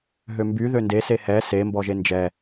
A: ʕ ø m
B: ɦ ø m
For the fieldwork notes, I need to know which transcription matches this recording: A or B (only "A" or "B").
B